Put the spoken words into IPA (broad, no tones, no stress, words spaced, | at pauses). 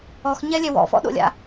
ɔxɲɛlʲɛ wɔ̰fɔ̰ɗo̰lʲa̰